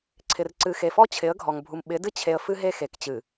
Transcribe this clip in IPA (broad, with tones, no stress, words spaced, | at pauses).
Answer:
ǀʰɪ˨rǀɨ˨xe˨fɔ˦ t͡ɕʰɪ˨˦ə̯ɡʱɔ˨ŋbʱu˨m ɓɪ˨˦dɨ˦ t͡ɕʰe˨ə̯ fɨ˦ɦe˦xe˨kt͡ɕɨ˨